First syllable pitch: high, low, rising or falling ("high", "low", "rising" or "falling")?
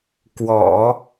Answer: low